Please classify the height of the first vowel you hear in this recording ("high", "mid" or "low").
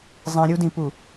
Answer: high